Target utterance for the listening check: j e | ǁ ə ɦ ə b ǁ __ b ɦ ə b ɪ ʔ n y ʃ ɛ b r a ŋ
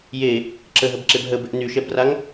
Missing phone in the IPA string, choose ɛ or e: e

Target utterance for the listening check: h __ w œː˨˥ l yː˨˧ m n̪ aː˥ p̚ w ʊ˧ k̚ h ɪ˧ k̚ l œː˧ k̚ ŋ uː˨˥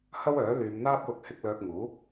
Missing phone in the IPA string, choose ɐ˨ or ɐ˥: ɐ˥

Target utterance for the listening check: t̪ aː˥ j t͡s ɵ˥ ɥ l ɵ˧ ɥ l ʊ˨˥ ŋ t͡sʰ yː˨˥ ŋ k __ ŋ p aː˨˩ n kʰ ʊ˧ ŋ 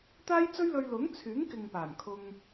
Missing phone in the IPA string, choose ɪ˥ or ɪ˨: ɪ˨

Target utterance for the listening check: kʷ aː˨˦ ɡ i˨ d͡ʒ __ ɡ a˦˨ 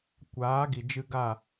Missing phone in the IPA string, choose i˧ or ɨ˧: ɨ˧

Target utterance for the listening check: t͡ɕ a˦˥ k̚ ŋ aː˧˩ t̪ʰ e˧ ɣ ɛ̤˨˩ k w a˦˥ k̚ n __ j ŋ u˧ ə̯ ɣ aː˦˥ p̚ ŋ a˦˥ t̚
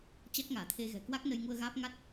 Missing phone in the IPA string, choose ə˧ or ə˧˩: ə˧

